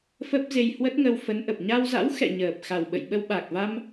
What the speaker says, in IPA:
f ə˦˥ p̚ z e˧ j h w ə˦˥ t̚ ŋ ə˧ w f ə˨˦ n ʔ ə˨˩ p̚ ɲ a˧ w z a̰˧˥ w x ɛ̰˧˨ ɲ əː˨˩ p̚ x a˨˩ w ɓ ə̰˧˨ j ɓ ə˧ w ɓ a˨˩ k̚ v a˧ m

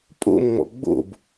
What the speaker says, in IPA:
pʼ o̰ m ŋ͡m ɔ̰ ɡ͡b o̰ b

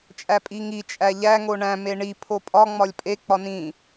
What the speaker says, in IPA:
t͡ʃʼ æ pʼ i ŋ i t͡ʃʼ æ ʎ æ ŋ o ɳ æ̃ m e ɳ i pʰ o pʼ ɒ ŋ͡m ɒ lʲ pʼ e k͡p ɒ n ĩ

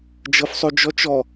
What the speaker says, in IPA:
d͡ʒ ɤ f sˤ o d͡ʒ ɔ t͡ʃ ɔ

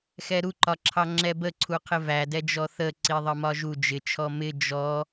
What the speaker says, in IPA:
x ɛ ɾ u ǃ ɒ ǁʰ ɑ ŋ͡ǁ ɛ b ə ǀʰ u qʰ ɪ v æ d ɛ d͡ʒ ɔ θ ə ǀ i ðˤ ɜ m ɒ ʒ u d͡ʒ ɪ t͡ʃʰ ɔ m ɪ d͡ʒ ɔ

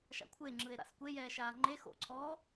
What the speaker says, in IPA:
ʃ a̰ kʷʰ e ŋ͡ǁ ɯ e̯ ɾ a̰ s kʷ e j ɛː ʃ aː ŋ͡ǃ e x o̰ ǀʰ ɔː

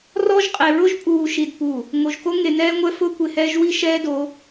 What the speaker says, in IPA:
r ɔ˦ ʒ qʼ e˨ ɹ ʊ˦ ʒ pʼ uː˨ ʃ i˨ d p u˨ | ŋ o˨ ʒ k o˦ ŋ e˨ n ɛː˦ ŋʷ ɛ˦ f ʊː˦ kʷ e˨ h ɛː˦ ʒ w i˦ ʃ ɛː˦ d o˨˦

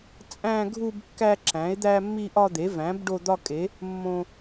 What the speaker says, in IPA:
t͡sʼ æ̃˦ ɡʱ u˦ b kː æ˦ ǁ æ̃˨˦ e̯ d̪ æ˦ mː i˦ ʔ ɒ˦ d̪ e˨˦ v æ̃˨˦ b ɖ o˦ d̪ ɒ˦ kʼ e˨˦ | mː õ˦

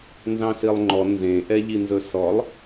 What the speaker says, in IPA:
n z ɑ̃ s i lˠ ŋ͡ǃ ɔ n z ẽ ʔ ɛ ʎ i n z ɵ s ɔ lˠ

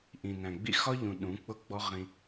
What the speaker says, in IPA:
ʔ ĩ˨ n æ̃˨ ɡ͡b ḭ˦ x ɒ˦ ʎ ũ˨ ɗ ũ˨˦ k͡p ʊ˦ ɡ͡b ɔ˦ ʁ ĩ˧

